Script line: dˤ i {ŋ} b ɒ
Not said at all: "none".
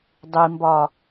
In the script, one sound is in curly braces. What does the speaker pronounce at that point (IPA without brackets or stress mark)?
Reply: m